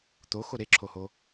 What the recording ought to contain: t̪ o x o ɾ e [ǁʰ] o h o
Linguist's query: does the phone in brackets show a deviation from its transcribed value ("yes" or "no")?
no